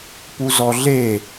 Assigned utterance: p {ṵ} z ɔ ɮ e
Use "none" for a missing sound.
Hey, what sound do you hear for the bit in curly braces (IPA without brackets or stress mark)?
u